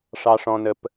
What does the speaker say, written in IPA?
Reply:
ʂ ɑ˩ ʂ ɔ̃˩ n ə˩ p

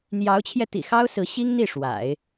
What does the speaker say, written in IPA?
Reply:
n̪ j ɑ˧˥ ʊ̯ t͡ɕʰ j ɛ˧ t̪ ḭ˨˩ x ɑ˥ ʊ̯ s ɹ̩˧˥ ɕ i˥ ŋ n̪ i˥˩ ʂ w a̰˨˩˦ ɪ̯

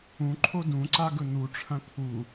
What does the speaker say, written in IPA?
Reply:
ũ ǃʰ o d ũ ǀ a ɡ ɵ n̪ u ʈ͡ʂʰ ɐ̃ t̪ʰ u

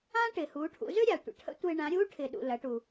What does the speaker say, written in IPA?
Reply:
ãː˥ ʈ ɪː˩ h uː˩˧ ʈʰ ṵ˩˧ z ø˥ ɾʲ a˩ tʷ ə̰˩ ʈʰ ə̰˧˥ tʷ ɪː˧ ɳ ã˩˧ ɾʲ uː˧˥ ʈʰ ɪ˩ ɗ ṵ˩ l ɐ˩˧ ʈ u˩

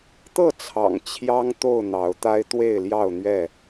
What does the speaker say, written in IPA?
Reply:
t̪ ɤ˥˨ t͡sʰ ɑ̰˨˩ ŋ t͡ɕʰ j ɑ˦ ŋ t̪ o˥˨ ʊ̯ n̪ ɑ˨˦ ʊ̯ t̪ a˦ ɪ̯ t̪ w e˥˨ ɪ̯ l j ɑ˥˨ ʊ̯ n̪ ɥ ɛ˥˨

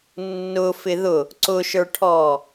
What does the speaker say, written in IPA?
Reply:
nː ʊ f ɪ ð ʊ | ǀ ʊ ʃ ə˞ ʈʰ ɔ

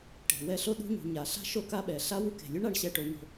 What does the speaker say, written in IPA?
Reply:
ʈ e̤˩ w ɛ˦ ɬ o˥ ɗ ṳ˥ ɲ ṳ˨ ɲ a˩ ɬ a̤˥ ʃ o˥ k a˥ ɓ ɛ˩ ɬ a˥ w u˦ k e̤˩ lʲ o˥ ɳ a˨ ɳ ɕ ɛ˦ ʈ o˨ ɲ o̤˨

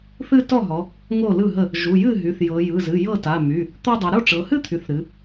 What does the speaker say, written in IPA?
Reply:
θ ɨ˥˧ t ɔ˥˩ ɦ ɔ˩˧ | ŋ o˥˩ l ɯ˥˩ ɦ ə˥˩ | ʒ u˩˧˩ j ɨ˥˩ ɦ y˩˧˩ θ j ɤ˩˧ j ɯ˩˧˩ z ɨ˩˧˩ j ɤ˥˩ t a˩˧˩ m y˩˧˩ | t̪ ɔ˥˧ dˤ u˩˧ ɾ o˥˩ ʈ͡ʂ ɤ˩˧ h ɨ˥˧ t̪ʰ y˩˧ θ ɾ ɨ˩˧

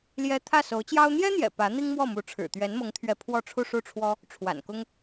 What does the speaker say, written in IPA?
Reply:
l j ɛ˥ t̪ʰ ä˥˩ s o˧˥ ʊ̯ t͡ɕ j ɑ˥ ʊ̯ n̪ j ɛ˥ n̪ j ɛ̰˨˩ p ä˧˥ n̪ i˥ ŋ m w ɔ˥˩ m u˧˥ ʈ͡ʂʰ ɻ̩˨˩ t̪ ɥ ɛ˧˥ n m ɤ˧˥ ŋ t̪ʰ ɥ ɛ˧˥ pʰ w ɔ˥˧ ʈ͡ʂʰ u˥˧ ʂ u˥˩ ʈ͡ʂʰ w ɔ˥ | ʈ͡ʂʰ w a̰˨˩ n k ʊ˥ ŋ

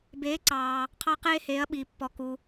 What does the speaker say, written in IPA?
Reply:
b eː˩˥ ǀ ɑː˩ | qʰ ɑ˦ q eː˦ h eː˩˥ ɐ̯ ɓ iː˩ pː ɔ˩ k u˩

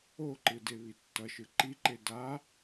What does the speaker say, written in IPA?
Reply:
o ǃ ɯ d e β i tː ʌ ʃ ɯ ǃ i ǃ e d a

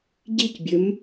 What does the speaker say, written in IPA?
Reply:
ɟ i c bʲ ɵ m

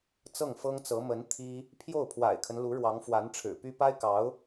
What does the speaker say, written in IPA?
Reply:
t͡s ɤ˥˩ ŋ f ɤ˥ ŋ t͡s ɤ˧˥ m ə˧˥ n t̪ʰ i˥ | pʰ j o˥˩ ʊ̯ pʰ w a̰˨˩ ɪ̯ kʰ ə˦ n l u˧˥ ɻ w ɑ˧˥ ŋ f w a˧˥ n ʈ͡ʂʰ ɻ̩˨˩ p y˥ p a˥ ɪ̯ k ɑ˧˥ ʊ̯

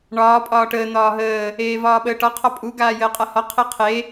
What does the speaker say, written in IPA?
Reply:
ɳ ɒː pʼ ɒː ʈ əː n̪ ɒː ɦ əː | eː v ɒː ɓ əː ʈ ɒ qʰ ɒ pʼ u ɡ aː j əː qʼ a h ɒ qʰ e qʰ e

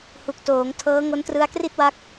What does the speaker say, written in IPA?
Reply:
h u˨˩ k̚ t oː˩˦ ŋ tʰ ɤː˦˥ ŋ o˦˥ n t r ɯ˦˥ a̯ k r i˥˩ t̚ w a˦˥ k̚

